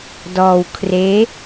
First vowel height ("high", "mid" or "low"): mid